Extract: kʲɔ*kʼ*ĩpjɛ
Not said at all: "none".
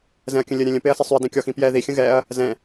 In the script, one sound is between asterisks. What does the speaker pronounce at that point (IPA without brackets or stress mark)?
x